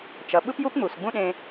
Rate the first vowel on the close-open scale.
mid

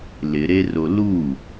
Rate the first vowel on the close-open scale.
close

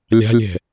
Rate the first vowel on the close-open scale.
open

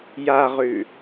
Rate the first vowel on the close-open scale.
open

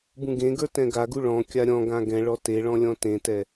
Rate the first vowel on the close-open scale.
close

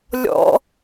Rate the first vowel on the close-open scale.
mid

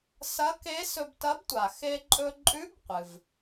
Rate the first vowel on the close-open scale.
open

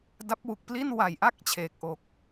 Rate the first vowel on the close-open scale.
open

